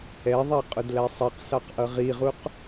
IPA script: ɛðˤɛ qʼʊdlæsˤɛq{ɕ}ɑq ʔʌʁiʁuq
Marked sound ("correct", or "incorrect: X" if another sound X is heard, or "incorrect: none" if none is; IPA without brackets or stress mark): incorrect: s